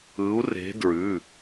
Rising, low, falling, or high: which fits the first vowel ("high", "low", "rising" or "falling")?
rising